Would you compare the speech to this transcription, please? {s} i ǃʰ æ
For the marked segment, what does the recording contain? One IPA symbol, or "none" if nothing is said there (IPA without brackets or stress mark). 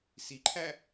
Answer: s